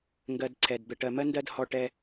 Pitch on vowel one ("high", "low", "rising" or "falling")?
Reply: low